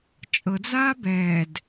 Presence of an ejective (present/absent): present